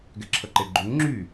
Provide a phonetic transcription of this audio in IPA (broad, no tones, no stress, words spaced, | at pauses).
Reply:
ɡɛǁʰəǃeɡ͡ǃuŋ ŋ͡ǁy